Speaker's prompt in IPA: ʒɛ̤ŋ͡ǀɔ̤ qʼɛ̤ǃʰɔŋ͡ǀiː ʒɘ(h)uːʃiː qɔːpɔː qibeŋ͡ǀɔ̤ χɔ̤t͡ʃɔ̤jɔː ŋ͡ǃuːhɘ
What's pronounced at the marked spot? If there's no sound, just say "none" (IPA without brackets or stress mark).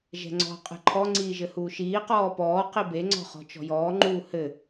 h